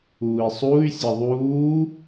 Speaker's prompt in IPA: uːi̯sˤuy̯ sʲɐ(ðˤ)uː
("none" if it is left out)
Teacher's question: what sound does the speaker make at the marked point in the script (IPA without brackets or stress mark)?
ðˤ